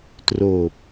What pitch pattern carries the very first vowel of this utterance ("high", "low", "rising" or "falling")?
low